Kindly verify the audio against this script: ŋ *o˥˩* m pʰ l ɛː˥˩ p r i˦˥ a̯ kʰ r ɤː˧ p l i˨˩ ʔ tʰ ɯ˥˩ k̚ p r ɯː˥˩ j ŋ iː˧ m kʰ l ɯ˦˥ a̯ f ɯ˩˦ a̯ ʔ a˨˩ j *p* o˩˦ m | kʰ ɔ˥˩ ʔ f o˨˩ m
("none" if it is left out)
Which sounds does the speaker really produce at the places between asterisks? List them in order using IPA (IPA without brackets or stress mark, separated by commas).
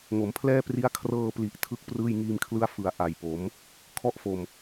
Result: o˩˦, p